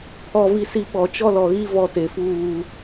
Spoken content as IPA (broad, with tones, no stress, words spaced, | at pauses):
pʰɔ˦vi˦si˦ ɓɔ˨t͡ʃɔ˦lɔ˨ɣi˦ vɔ˦te˨fuː˦˨